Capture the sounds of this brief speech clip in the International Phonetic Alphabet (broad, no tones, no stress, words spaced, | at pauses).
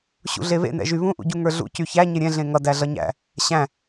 ɕṵɮeβḛ nɛ̰ʒyβũ ʔṵɟuŋə˞ɮṵ cyçæ ɲeɾʲɛ̃ ɮẽŋʌ dæɮʌɲæ̰ | ɕæ̃